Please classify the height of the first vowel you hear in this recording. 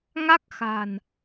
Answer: low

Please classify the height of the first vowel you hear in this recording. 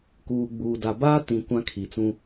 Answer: high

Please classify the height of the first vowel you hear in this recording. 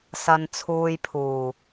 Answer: low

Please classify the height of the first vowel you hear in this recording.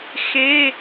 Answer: mid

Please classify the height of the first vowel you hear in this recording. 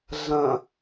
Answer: low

